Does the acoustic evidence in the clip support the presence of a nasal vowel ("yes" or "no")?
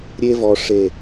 no